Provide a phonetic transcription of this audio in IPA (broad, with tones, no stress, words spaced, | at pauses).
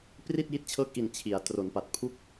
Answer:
pri˥˩t̚ji˦˥t̚t͡ɕʰɤː˦˥k̚ʔi˨˩n t͡ɕʰi˩˦a̯ tro˩˦npa˨˩t̚pʰu˥˩k̚